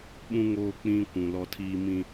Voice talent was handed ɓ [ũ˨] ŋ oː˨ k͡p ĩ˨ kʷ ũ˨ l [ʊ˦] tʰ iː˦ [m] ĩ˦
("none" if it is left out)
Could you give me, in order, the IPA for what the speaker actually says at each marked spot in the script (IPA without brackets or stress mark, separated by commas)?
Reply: ũ˨, ɔ˦, m